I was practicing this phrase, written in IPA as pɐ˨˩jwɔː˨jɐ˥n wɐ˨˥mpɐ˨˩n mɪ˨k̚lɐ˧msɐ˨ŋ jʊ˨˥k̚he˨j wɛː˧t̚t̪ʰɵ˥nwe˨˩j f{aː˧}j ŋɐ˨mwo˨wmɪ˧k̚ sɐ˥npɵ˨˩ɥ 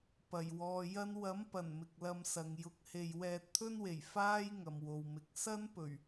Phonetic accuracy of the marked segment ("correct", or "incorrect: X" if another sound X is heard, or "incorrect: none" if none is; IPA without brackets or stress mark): incorrect: aː˥